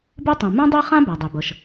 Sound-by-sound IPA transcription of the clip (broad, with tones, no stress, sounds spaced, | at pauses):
b ɯ˥ tˤ ũ˩ m ũ˥ dˤ e˥ χ ã˥ b a˩ dˤ e˩ b ɤ˩ ʃ